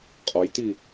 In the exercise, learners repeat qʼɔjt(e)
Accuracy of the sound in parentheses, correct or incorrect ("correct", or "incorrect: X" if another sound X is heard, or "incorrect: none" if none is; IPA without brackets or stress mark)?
incorrect: i